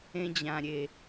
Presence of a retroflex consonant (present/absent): absent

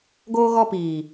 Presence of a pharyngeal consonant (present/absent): absent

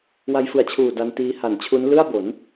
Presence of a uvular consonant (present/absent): absent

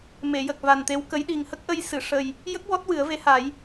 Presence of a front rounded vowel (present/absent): absent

